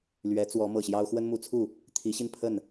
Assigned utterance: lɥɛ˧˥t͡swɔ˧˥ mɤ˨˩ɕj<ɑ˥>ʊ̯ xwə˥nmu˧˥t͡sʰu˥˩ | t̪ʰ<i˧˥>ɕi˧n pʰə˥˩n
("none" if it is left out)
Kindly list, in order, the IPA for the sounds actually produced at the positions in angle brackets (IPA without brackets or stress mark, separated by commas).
ɑ˥, i˧˥